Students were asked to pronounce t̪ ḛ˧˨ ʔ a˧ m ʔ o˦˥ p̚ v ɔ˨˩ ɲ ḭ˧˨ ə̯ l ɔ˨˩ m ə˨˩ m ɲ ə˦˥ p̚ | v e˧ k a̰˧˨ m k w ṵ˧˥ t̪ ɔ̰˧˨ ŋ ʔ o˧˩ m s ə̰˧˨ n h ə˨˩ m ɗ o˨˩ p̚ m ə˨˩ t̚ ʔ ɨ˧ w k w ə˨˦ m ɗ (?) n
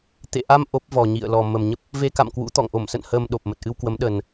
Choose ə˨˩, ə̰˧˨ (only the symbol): ə˨˩